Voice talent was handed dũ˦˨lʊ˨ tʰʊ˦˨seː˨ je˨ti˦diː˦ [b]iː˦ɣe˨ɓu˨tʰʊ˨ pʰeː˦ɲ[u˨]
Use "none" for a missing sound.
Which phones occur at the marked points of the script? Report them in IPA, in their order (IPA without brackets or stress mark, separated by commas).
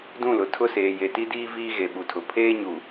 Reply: v, u˨